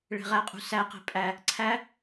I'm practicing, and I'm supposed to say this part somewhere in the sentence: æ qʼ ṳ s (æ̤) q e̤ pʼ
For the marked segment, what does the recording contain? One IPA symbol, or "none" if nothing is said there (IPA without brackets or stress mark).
æ